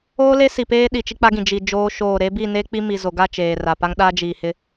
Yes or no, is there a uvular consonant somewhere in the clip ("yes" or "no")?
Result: no